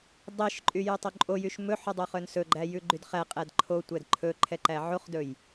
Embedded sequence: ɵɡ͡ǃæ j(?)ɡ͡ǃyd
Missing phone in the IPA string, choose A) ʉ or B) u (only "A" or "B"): A